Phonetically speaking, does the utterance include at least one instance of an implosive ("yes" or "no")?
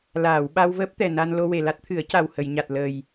yes